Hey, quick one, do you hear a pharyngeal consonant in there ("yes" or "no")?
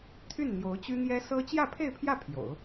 no